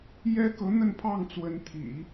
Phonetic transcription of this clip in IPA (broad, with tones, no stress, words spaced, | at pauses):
jɛ˥ kɤ˧˥ n̪ə˥˧npʰɑ˥˩ŋt͡swə˧˥n t̪ʰḭ˨˩˦